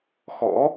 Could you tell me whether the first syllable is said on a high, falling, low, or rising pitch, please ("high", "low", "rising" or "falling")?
rising